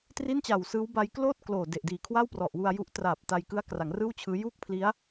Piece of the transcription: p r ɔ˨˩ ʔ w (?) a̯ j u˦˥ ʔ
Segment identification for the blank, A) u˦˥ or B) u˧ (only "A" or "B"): B